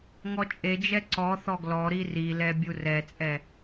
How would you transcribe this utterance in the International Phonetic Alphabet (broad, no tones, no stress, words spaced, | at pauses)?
ŋɔt͡ʃʼed͡ʒɛ ǀɔ θɔɡlɔɾi rilɛ bʲurɛt͡sʼɛ